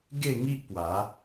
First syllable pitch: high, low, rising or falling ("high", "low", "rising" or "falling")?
falling